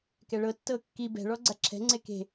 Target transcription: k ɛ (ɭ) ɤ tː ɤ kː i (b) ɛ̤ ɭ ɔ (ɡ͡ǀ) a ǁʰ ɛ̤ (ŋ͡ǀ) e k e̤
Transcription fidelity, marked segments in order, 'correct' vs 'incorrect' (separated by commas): correct, correct, correct, correct